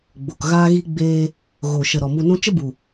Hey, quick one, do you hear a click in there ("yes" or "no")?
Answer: no